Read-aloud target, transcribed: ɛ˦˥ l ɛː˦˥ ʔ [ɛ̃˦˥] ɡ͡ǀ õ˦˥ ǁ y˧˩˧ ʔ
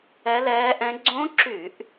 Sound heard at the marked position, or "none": ɛ̃˦˥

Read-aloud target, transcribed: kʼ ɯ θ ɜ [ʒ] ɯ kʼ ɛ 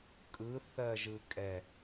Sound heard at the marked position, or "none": ʒ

